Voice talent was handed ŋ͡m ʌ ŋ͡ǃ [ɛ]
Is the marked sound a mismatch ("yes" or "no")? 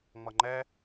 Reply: no